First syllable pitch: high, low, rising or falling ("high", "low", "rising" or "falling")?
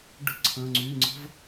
falling